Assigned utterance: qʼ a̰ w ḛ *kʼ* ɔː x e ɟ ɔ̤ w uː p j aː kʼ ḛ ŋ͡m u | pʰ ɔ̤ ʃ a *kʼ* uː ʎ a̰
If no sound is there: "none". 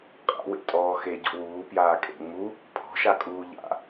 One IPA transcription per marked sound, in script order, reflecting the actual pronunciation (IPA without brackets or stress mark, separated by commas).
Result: tʼ, kʼ